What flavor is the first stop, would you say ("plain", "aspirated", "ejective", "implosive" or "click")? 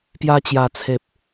plain